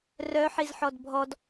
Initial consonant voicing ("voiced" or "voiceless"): voiced